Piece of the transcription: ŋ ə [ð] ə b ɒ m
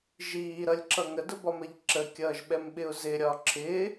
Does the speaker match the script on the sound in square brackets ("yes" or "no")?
no